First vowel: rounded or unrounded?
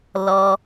rounded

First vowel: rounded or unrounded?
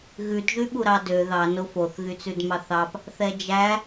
rounded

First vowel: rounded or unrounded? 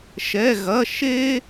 unrounded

